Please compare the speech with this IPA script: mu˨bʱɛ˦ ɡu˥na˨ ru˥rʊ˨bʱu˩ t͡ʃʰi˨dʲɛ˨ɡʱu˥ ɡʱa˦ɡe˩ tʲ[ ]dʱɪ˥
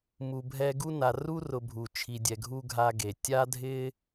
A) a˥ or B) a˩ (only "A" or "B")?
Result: A